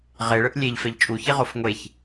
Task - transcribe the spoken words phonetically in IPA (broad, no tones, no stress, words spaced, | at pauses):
ʁeɭɯʔ lʲeʎfɛʎ t͡ʃʼuçiʁof ŋʷeç